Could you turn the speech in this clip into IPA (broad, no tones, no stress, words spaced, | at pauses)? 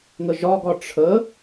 ŋəʒɒɡɒ ʈ͡ʂʰə